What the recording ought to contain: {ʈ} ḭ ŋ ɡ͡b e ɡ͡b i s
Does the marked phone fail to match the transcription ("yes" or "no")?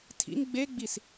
yes